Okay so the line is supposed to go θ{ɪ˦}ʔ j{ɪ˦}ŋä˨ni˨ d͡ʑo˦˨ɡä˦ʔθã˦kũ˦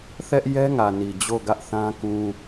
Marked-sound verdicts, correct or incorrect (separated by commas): incorrect, incorrect